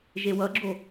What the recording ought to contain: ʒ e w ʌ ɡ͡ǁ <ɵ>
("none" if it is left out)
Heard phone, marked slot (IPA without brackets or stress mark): o